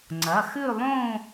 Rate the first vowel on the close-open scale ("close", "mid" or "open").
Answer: open